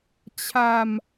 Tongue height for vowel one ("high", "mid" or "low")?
low